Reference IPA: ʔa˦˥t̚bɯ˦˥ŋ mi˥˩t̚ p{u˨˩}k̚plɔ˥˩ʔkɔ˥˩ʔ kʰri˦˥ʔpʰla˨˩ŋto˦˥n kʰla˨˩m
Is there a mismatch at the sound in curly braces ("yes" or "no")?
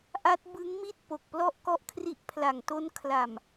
yes